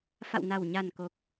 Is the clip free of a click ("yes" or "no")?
yes